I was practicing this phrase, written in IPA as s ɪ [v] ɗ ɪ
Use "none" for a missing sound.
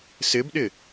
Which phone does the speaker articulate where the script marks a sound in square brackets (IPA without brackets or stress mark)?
b